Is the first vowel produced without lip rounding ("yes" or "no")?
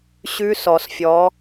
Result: no